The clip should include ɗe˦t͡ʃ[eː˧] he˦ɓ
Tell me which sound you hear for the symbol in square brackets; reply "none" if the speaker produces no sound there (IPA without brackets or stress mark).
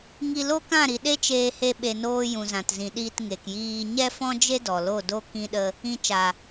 eː˧